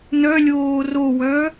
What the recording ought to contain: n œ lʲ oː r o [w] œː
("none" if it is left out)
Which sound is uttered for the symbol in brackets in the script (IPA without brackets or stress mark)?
w